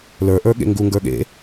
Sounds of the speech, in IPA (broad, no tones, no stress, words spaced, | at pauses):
lə˞ ʔə˞ɠḛŋɡu ŋɡə˞ɠḛ